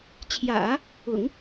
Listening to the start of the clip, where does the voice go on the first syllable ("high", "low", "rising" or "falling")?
low